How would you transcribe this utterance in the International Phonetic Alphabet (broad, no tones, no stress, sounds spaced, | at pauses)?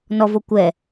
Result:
n ɔ v o kʷ ɛ